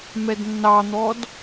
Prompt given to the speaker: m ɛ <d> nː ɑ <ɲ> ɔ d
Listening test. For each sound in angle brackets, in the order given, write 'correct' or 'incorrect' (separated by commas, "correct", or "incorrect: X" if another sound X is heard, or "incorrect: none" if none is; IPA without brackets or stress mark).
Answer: correct, incorrect: n̪